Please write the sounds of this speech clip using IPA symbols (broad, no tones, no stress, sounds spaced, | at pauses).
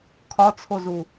kʰ ɒ t͡sʰ o z u